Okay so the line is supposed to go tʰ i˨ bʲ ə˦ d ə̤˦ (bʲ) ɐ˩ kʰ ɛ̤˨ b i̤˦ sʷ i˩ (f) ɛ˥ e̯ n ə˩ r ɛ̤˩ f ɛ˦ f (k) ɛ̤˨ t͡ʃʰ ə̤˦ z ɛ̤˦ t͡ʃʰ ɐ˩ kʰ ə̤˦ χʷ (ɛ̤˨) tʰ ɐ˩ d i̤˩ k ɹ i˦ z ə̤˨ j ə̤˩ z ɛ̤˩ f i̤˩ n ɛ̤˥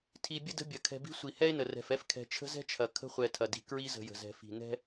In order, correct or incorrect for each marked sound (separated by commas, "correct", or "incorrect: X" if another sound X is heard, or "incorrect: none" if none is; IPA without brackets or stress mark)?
correct, incorrect: h, incorrect: kʰ, incorrect: ɛ˨